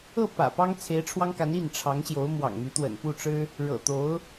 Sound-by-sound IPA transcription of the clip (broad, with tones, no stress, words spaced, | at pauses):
ɤ˥˩ pä̰˨˩pɑ˥ŋ t͡sʰe˧˥ɪ̯ʈ͡ʂʰwɑ˥ŋka˧˥n i˥˩nʈ͡ʂʰɑ˧˥ŋɕjo˧˥ʊ̯ mwɑ̰˨˩ŋmy˧˥t̪wə̰˨˩n pu˥˩ʈ͡ʂɻ̩˥ | ɻɤ̰˨˩t̪o˧˥ʊ̯